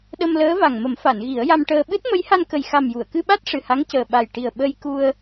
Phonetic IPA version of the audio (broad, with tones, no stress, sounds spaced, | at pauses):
ɗ ə˧ m l əː˧˥ v a˨˩ ŋ m ə˨˩˦ m f a˨˩˨ n ɣ i˨˩˦ ə̯ j a˧ m ʈ əː˧ ɓ ɨ˦˥ t̚ m ə˧˥ j h a˧ n k ə˨˩ j x a˨˩ m j u˨˩˨ ə̯ k ɨ˧ ɓ a˦˥ t̚ ʂ ɨ˨˩ h a˧˥ ŋ c əː˨˩ ɓ a˨˩ j ʈ i˨˩ ə̯ ɓ ə˧ j k u˧ ə̯